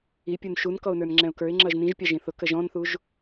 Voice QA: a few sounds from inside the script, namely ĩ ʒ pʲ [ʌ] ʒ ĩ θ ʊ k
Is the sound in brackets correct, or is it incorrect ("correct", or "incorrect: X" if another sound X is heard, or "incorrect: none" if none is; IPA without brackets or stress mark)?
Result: incorrect: ɑ